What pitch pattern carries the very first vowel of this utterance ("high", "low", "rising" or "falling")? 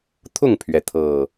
falling